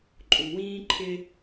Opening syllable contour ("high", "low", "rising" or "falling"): low